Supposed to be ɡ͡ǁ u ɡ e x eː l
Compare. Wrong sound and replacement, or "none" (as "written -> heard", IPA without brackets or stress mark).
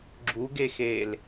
none